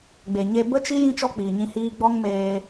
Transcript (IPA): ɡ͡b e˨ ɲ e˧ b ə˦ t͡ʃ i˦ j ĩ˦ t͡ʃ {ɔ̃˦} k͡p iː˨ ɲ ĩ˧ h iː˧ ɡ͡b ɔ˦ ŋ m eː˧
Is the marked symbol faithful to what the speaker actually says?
no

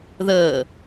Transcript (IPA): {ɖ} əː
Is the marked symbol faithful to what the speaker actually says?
no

